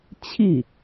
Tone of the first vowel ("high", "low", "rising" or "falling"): falling